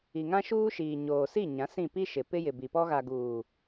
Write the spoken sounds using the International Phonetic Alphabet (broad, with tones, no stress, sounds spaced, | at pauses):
i˨ ŋ ã˦ ʃ uː˦ ʃ iː˨ ɲ oː˨ s i˦˨ ɲ ã˨˦ s ĩ˦˨ p i˦ ʃ ɪ˨ p ɪ˦ j ɪ˨ b i˨ p ɔ˦ ɣ a˨ ɡ uː˨